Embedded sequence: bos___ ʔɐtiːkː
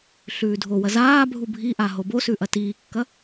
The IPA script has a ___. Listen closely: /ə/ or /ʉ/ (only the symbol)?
ʉ